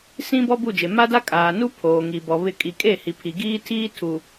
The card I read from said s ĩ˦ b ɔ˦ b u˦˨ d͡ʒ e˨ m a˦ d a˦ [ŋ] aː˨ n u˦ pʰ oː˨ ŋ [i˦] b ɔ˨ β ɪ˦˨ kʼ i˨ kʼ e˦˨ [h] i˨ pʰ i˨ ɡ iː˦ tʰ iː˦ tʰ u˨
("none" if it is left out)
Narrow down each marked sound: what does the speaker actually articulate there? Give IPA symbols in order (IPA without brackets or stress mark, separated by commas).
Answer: kʼ, i˨, h